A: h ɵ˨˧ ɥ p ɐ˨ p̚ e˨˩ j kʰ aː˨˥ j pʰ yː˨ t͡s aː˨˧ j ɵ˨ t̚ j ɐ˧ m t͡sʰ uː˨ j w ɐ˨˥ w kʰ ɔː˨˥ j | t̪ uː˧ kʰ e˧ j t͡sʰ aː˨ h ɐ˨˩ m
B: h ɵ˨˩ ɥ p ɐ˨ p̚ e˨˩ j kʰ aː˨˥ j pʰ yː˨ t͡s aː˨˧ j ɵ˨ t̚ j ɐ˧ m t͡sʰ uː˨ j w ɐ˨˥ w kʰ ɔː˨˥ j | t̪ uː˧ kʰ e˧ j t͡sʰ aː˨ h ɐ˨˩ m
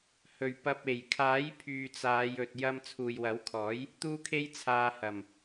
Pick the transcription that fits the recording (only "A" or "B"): B